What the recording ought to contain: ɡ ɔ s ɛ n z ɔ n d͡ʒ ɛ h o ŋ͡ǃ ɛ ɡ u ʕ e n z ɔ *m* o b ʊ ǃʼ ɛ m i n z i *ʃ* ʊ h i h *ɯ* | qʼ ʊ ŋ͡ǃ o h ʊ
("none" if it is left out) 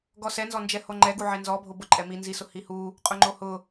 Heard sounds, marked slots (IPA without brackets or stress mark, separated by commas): bʱ, s, u